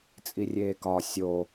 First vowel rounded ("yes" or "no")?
no